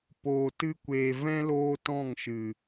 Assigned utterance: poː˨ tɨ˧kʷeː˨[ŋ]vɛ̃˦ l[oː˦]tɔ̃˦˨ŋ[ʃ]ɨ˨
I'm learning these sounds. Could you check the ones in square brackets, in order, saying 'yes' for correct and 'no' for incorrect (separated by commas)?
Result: no, yes, yes